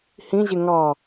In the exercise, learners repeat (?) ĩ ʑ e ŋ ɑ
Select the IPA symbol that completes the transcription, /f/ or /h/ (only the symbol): h